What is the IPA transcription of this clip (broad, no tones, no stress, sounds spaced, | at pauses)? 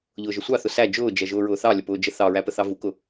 ʎ ʊː ʒ ə sʷ ɑ θ ʊ s æ d͡ʒ ʊː d͡ʒ ɛ ʒ ʊː ɹ ʊː θ ɑ lʲ ə p ʊː d͡ʒ ə θ ɑ ɹ æ p ə θ ɑ v u k ʊ